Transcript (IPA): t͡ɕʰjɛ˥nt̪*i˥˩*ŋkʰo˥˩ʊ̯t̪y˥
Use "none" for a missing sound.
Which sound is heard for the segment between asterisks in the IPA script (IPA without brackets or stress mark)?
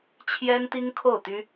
i˥